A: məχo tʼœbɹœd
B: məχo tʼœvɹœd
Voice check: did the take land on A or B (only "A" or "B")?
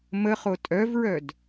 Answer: B